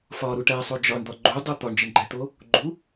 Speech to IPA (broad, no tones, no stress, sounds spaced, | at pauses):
f ɒ ɾ u ʈ æ sˤ o d͡ʒ ɒ ɳ d̪ ɒ ɡ͡ǃ u dˤ o t̪ ɒ ɳ d͡ʒ e ɳ ɡ͡ǃ æ t̪ o | ɡ͡ǃ u